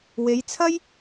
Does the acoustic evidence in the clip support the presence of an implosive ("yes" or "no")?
no